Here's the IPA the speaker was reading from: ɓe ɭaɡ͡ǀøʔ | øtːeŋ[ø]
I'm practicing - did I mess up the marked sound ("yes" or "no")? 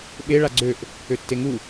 yes